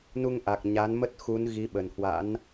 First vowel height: high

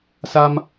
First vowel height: low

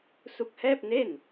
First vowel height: high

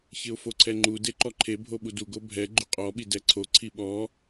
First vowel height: high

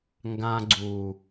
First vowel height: low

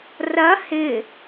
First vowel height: low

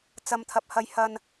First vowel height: low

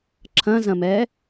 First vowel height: low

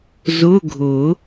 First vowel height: high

